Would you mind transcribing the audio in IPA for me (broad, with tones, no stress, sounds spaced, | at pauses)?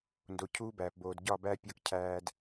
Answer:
n d o˨ cʰ uː˦ b æː˨ p b oː˨ d ɟ ɒ˦˨ b æ˦ pʲ ɒ˦ k cʰ æː˦ d